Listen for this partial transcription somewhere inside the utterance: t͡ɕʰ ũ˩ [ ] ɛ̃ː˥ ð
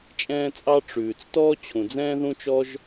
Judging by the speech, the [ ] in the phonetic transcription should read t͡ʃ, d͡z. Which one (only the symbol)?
d͡z